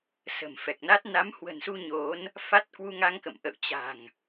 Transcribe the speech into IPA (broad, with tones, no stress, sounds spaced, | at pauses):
s ə̤˨˩ m f ɛ˨˩ k̚ n a˦˥ t̚ n a˨˦ m h w ə̤˨˩ n s u˧ ɲ o˨˦ n | f a˦˥ t̚ k w u˧ ŋ a˧ ŋ k ə̰˧˨ m ʔ ə̰˧˨ w t͡ɕ a̤˨˩ ŋ